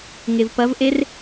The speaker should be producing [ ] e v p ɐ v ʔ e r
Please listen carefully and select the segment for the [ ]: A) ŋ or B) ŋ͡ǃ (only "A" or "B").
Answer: A